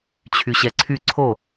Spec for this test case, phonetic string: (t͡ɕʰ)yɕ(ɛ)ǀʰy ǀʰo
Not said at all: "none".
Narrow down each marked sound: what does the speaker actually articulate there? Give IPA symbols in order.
t͡ɕʰ, ɛ

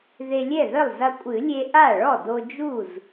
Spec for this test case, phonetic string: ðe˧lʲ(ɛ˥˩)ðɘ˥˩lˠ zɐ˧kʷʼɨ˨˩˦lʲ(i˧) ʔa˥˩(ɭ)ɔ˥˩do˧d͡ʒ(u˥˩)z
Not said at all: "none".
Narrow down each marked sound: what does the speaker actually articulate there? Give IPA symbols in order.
ɛ˥˩, e˧, ɭ, u˥˩

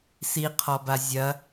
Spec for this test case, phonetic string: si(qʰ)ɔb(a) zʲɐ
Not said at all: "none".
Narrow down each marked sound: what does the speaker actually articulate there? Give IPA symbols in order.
qʰ, a

